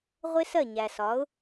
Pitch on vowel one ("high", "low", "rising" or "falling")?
high